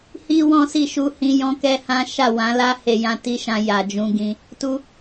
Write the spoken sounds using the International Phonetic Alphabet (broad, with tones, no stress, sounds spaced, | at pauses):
h i˦ w ɔ̃˦ s i˦˨ ʃ u˧ h ĩ˧ j ɔ̃˦ k ɛ˦ h ã˦ ʃ a˦˨ w ã˨˦ l a˦ h e˧ j ã˧ t i˦ ʃ ã˧ j a˨ d͡ʒ ũ˧ ɡ ĩ˧ | t u˧